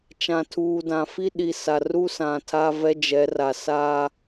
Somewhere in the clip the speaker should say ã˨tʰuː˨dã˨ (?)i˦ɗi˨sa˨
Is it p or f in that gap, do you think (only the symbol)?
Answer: f